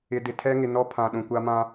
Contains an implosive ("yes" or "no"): yes